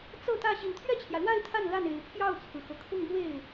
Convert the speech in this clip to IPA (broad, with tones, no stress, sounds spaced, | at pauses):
t͡s ɤ˥˧ t̪ ä˥˩ ɕ i˨˩ n t̪ʰ ɥ ɛ˥˩ t͡ɕʰ j ä˩ l w a˥˧ ɪ̯ t̪ʰ a˥˧ n l a˥˩ n e˨˩ ɪ̯ pʰ j ɑ˥˩ ʊ̯ t͡sʰ ɹ̩˩ x ɤ˩ kʰ ʊ˥˧ ŋ m w e˥˩ ɪ̯